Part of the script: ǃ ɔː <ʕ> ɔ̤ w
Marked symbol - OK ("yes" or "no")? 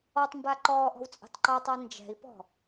no